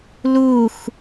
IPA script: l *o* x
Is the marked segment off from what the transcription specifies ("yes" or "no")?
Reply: yes